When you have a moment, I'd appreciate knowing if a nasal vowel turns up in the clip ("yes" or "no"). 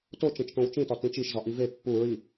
yes